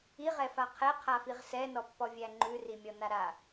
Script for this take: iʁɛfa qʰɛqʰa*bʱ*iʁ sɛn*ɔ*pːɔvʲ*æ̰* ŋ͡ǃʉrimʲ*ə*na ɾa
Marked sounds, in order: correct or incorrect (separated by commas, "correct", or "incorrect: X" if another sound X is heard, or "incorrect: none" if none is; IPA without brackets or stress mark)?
incorrect: f, correct, incorrect: æ, incorrect: ɔ